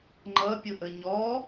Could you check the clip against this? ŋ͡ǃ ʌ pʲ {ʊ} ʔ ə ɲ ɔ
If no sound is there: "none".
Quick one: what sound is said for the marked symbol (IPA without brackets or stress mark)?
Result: ʊ